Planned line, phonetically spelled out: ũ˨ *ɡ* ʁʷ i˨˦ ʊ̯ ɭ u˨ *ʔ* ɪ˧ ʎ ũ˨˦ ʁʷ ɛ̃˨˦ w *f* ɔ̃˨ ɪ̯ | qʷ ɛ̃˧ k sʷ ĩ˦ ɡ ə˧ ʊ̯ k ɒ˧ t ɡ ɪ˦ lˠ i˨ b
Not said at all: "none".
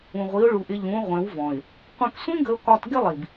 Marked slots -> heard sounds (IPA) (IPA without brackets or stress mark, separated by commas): none, ʔ, v